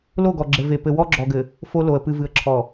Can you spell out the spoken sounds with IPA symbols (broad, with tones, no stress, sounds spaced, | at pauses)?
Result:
l o˦˨ ɡ ɔ˨ ɡ͡ǁ ɘ˨ v e˨ p ɘ˨ w ɔ˦ ɡ͡ǁ ɔ˨ ɡ ɘ˨ | f o˦ l o˨ ə̯ p ɨ˨ v ɨ˨ ə̯ ǁʰ ɔ˨